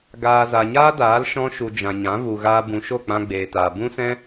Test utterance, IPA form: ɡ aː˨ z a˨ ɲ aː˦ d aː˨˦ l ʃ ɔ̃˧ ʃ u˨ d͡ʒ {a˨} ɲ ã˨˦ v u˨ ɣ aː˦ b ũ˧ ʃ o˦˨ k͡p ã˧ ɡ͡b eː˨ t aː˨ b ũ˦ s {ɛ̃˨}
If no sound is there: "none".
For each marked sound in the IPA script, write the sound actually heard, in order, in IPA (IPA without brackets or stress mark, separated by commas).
ã˨, ɛ̃˦